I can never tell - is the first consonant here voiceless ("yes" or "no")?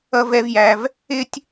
no